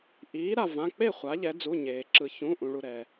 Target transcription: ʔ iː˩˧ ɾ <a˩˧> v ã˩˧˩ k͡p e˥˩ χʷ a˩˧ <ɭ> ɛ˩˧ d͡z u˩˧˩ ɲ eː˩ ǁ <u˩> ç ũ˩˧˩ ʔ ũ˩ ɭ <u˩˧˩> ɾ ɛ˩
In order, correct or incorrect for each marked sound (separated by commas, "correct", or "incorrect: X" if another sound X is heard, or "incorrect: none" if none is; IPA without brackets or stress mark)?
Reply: incorrect: a˩, incorrect: ʎ, incorrect: ɯ˩, incorrect: u˩